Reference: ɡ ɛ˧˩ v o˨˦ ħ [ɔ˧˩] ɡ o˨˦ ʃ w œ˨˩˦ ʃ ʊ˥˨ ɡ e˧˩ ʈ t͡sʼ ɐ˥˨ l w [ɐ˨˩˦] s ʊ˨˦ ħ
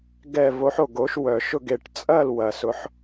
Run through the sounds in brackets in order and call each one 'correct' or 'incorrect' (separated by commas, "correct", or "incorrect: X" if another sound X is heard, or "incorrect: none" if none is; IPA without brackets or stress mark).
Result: incorrect: o˧˩, correct